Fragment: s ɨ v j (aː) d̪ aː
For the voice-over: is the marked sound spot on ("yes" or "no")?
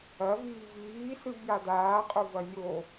no